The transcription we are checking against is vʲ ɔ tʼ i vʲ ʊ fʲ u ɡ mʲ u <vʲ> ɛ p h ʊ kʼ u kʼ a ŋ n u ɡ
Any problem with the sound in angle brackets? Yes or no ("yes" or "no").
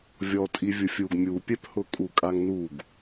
yes